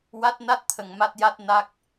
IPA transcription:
w a˦˥ t̚ n a˦˥ t̚ t̪ʰ ə˧ ŋ m a˦˥ t̚ j a˦˥ t̚ n a˦˥ k̚

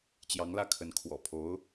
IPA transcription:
t͡ɕ j ɑ˧˥ ŋ l ä˥˩ kʰ ə˧˥ n kʰ w ɔ̰˨˩ pʰ o˧˥ ʊ̯

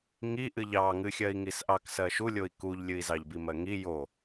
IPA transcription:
ŋ i ʔ ɨ ʎ ɑ ŋ ɨ xʲ ɜ i̯ ŋ i s ʔ ɑ k s ɜ ʃ u lʲ o i̯ k u ʎ lʲ ɨ i̯ z ɑ ʎ b i m ɜ ŋ i j o

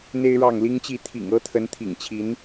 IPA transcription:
n̪ e˦ ɪ̯ ɻ ɑ˥˨ ŋ l i˦ ŋ t͡ɕ i˥˨ t̪ʰ ḭ˨˩ ŋ ɤ˦ t̪ʰ ə˨˦ n t̪ʰ ḭ˨˩ ŋ t͡ɕʰ i˨˦ n

